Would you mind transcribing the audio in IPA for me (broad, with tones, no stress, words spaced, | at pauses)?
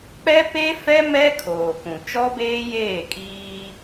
k͡pɛ˦pe˦fɛ˦ mɛ˦ kʰoː˨kũ˨ t͡ʃɔ˦beː˦ jeː˦˨kʼiː˦